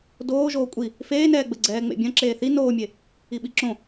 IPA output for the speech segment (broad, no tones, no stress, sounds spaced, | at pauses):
d oː ʒ oː kʷʼ i | f eː n ɛː ɡ͡b ɘ ɡ͡ǀ ɛː ŋ͡m ḛ bʲ ɐ̃ ǁ eː θ i n oː mʲ e | i ɓ i ǁ õ